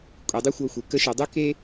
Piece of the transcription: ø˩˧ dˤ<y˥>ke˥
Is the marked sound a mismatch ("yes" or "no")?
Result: yes